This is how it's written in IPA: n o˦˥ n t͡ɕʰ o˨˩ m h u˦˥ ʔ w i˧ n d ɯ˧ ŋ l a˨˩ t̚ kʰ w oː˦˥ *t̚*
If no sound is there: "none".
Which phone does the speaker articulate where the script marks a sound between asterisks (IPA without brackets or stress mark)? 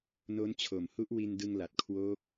k̚